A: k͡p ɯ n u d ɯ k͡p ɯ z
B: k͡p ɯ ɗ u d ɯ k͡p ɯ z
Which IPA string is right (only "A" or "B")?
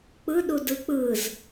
B